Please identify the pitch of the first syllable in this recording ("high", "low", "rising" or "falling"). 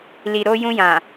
low